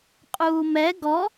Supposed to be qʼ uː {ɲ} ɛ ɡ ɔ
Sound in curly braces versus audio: incorrect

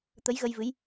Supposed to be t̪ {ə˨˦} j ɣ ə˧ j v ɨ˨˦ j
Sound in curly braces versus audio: correct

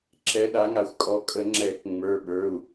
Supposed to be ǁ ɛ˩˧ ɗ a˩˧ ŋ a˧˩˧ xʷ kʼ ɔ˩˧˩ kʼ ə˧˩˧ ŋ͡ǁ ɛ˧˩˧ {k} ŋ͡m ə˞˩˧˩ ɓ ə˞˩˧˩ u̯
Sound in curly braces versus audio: correct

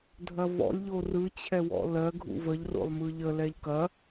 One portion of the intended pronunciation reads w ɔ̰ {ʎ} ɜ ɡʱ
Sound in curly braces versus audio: incorrect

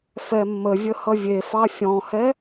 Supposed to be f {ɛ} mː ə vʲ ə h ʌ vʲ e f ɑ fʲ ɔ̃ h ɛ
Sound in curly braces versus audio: correct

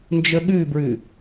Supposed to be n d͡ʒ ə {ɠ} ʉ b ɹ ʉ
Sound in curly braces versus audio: correct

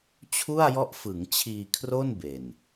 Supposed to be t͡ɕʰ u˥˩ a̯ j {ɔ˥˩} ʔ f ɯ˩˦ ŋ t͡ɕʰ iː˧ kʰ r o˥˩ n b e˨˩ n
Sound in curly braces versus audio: incorrect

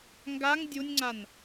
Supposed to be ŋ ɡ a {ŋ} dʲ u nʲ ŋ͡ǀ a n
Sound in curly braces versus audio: correct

